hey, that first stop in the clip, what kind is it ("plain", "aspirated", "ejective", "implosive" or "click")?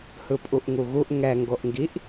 ejective